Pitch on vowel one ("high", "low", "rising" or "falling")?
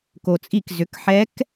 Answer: low